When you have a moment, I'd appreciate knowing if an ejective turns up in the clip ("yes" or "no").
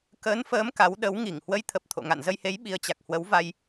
no